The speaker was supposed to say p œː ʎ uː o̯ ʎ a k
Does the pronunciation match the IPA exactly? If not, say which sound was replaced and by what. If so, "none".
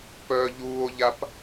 k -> p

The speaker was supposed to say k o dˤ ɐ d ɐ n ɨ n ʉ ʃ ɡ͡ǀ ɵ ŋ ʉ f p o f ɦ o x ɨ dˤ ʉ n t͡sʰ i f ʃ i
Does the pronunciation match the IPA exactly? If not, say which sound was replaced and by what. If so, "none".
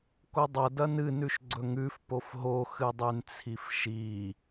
none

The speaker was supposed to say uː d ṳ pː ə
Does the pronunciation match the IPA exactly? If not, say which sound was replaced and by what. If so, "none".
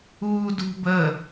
pː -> b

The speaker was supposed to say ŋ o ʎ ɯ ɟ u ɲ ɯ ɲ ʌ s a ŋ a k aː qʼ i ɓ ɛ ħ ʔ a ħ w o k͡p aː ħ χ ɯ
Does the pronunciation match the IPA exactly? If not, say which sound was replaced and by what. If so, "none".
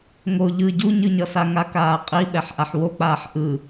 χ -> ʔ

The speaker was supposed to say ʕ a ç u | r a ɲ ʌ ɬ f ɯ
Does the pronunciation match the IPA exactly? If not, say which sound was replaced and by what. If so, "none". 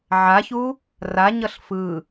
none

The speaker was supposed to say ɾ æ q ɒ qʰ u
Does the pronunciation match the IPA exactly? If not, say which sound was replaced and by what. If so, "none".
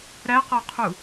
none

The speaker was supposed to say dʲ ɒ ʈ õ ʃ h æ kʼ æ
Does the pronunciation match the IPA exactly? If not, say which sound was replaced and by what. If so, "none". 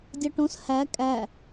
ʃ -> s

